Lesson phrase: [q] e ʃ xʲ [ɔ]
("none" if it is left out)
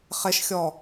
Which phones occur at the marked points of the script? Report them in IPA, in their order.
χ, ɔ

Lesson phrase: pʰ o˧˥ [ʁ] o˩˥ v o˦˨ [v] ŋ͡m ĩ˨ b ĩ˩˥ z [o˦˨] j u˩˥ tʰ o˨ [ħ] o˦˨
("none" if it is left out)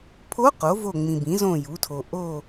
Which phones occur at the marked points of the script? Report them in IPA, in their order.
q, none, õ˦˨, ʔ

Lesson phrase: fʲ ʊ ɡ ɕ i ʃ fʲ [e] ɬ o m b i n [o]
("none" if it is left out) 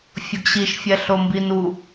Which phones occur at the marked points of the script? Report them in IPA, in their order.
ɛ, u

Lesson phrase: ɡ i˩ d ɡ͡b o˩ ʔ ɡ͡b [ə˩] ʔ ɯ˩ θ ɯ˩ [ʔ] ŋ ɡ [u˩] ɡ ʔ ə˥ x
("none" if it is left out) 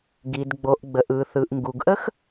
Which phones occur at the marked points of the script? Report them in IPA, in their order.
ə˩, ʔ, u˩

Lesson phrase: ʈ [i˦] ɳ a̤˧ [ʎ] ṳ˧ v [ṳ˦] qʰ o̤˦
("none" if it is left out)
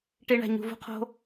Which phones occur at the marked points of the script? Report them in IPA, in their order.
i˦, ɲ, ṳ˦

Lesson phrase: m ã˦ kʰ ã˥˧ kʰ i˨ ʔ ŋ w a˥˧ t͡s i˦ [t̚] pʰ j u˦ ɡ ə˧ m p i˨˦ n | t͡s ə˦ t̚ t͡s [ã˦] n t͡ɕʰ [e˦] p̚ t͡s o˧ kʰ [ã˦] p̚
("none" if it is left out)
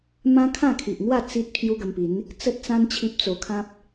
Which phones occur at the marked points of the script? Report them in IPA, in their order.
t̚, ã˦, i˦, ã˦

